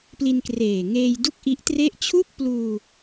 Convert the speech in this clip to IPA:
p l i˧ n k r eː˨˩ ŋ eː˧ j d u˥˩ k̚ ʔ i˦˥ ʔ t r e˥˩ ʔ t͡ɕʰ u˥˩ k̚ p l uː˧

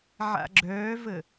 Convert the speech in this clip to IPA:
ʕ a̰ ɡ͡ǁ œː v ə

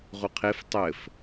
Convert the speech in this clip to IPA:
ʁ u qʰ e f tˤ ɘ f

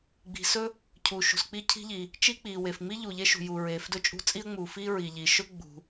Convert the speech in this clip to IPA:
ɡ͡b i̤˩ s ɵ˥ | cʰ uː˩ ʃ ṳ˩ s k͡p i˥ cʰ i̤˥ ʎ i˩ | t͡ʃ i˥ k͡p iː˩ w e˩ f ŋ͡m i˥ ʎ u˩ ʎ e˥ ʃ ṳ˩ j u˩ ɹ eː˩ f d ɵ˥ t͡ʃʼ ṳ˥ t͡sʼ i˥ ə̯ ŋ͡m uː˩ f iː˥ ɹ i˩ ʎ i˩ ʃ ɵ˥ ɡ͡b ṳ˩

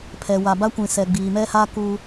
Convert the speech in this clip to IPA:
pʰ ɛ˨ w a˨ b a˦ kʷ ĩ˨ s ɛ˨ ɡ͡b iː˨ m ɛ˦ h a˦ k u˦

